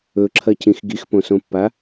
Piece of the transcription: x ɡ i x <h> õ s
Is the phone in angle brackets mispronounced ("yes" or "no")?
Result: yes